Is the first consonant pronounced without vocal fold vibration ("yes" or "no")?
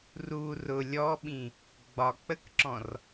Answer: no